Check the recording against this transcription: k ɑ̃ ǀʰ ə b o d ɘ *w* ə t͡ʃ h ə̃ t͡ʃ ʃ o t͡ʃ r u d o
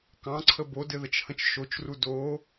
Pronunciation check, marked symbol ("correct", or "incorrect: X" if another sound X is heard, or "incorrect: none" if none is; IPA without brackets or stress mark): incorrect: ð